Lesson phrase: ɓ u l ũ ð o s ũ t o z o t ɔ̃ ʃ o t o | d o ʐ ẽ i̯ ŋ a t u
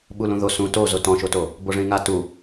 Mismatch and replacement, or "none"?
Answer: d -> b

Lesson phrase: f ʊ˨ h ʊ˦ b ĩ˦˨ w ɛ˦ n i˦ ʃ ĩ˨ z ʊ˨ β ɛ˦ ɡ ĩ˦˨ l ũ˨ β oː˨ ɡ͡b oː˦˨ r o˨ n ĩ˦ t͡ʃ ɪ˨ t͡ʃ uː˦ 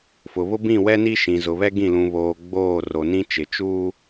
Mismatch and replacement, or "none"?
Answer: h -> β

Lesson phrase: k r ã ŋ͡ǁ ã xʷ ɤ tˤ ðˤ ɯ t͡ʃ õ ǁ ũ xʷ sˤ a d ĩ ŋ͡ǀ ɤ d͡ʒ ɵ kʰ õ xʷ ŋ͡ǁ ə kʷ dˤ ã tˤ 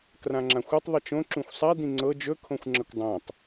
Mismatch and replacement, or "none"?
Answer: ɯ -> ə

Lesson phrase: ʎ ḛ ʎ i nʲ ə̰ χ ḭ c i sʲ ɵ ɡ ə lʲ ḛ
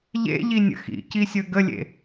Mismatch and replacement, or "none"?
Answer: χ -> x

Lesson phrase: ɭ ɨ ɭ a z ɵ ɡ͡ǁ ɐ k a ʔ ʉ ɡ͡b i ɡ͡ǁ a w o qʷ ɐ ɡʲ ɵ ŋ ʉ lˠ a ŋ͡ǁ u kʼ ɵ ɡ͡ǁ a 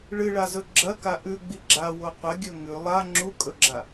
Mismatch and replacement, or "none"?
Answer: none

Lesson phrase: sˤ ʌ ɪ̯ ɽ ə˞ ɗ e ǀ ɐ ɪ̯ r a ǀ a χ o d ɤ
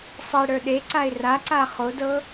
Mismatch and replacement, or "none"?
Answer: ɐ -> a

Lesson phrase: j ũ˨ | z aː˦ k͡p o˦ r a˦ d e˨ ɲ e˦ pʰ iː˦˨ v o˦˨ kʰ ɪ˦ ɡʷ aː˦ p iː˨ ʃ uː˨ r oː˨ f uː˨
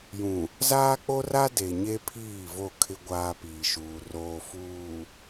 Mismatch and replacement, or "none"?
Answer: none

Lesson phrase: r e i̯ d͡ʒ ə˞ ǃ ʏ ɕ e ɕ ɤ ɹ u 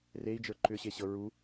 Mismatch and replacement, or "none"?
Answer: none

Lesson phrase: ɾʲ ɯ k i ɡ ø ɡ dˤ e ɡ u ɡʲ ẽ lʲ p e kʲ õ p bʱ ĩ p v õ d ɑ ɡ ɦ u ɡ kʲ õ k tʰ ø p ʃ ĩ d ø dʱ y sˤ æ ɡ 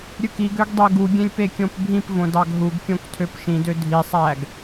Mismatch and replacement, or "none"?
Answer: y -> i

